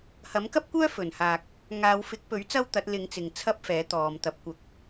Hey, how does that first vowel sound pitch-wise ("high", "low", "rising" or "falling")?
rising